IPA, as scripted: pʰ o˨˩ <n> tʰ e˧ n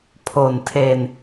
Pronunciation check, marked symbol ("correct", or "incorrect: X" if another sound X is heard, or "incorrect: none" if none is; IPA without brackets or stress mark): correct